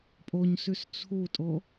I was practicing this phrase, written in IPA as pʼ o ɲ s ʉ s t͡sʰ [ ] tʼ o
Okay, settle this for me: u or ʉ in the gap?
u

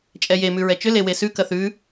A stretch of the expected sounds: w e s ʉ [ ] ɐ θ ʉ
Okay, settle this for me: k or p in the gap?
k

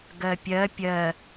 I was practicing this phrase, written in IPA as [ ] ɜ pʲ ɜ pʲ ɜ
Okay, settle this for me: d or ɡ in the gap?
ɡ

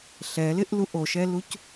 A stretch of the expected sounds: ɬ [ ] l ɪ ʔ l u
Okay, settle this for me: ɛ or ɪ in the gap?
ɛ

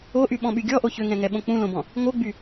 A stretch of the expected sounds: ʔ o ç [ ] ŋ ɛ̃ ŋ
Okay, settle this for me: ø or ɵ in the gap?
ø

